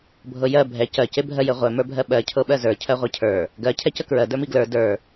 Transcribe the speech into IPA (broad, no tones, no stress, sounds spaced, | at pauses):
bʱ ɤ j ɜ bʱ ɛ c ɜ c e bʱ ɜ j ɘ ʁʷ ɛ m ə˞ bʱ ɜ ɓ ɜ cʰ ɤ ɓ ɜ z ə˞ cʰ ɜ ʁʷ ɜ cʰ ə˞ | ɡ ɜ cʰ ɛ c ə k ɹ ɜ d ə˞ m i ɡ l ə˞ d ə˞